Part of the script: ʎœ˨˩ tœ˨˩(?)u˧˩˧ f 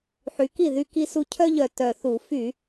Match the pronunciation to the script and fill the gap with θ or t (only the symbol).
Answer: θ